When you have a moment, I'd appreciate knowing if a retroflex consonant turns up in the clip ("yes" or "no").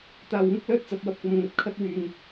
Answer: no